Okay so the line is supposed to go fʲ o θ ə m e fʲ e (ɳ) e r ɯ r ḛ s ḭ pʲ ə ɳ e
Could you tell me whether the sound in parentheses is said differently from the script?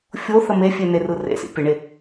yes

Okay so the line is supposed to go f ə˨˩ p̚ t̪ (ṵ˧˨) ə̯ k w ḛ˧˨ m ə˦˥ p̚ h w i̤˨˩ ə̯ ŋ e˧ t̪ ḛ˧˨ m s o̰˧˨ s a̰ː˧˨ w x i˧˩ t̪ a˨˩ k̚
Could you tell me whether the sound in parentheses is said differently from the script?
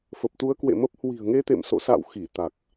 yes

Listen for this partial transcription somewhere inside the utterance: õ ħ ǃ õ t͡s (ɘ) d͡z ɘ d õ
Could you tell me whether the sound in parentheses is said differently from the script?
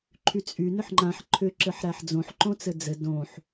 no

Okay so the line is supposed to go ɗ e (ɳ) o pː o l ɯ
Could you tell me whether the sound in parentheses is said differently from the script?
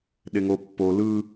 yes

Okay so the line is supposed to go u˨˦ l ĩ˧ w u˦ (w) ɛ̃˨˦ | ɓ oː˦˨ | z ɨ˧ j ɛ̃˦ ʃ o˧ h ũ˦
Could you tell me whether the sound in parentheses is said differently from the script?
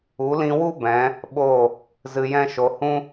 yes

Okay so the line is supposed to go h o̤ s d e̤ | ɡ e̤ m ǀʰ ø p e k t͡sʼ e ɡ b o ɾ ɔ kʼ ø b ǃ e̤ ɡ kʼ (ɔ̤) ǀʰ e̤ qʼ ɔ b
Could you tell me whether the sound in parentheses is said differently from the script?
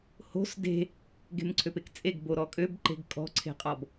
no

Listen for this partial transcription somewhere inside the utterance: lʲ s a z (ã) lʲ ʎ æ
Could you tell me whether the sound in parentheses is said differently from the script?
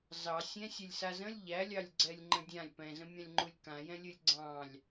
yes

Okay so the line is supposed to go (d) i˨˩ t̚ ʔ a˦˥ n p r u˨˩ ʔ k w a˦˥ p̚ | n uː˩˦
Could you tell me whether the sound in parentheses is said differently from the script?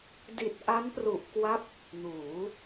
no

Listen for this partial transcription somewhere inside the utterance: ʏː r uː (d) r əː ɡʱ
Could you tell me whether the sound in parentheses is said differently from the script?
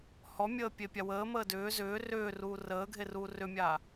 yes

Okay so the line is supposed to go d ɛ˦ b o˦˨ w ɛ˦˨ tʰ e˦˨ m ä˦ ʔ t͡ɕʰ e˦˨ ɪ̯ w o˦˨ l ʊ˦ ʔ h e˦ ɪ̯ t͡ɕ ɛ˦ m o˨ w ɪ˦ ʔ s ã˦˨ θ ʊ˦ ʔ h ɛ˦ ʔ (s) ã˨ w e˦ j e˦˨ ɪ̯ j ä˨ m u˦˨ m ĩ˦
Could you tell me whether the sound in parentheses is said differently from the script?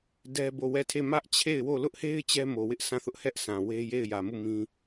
no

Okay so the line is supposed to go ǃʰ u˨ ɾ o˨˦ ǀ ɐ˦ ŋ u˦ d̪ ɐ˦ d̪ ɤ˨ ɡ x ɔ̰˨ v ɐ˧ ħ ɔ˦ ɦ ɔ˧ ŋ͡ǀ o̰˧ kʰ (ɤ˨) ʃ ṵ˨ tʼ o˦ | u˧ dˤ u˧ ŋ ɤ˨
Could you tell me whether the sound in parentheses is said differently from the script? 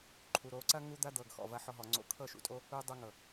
yes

